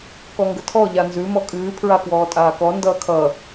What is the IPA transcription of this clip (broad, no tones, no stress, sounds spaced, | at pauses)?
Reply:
k ɔ ŋ ɡ ə tʰ ɔ ʎ a n z ʉ m ɔ kʼ ʉː pʰ ɹ a k w ɔː tʼ aː k ɔ n d ʌː kʰ ʌ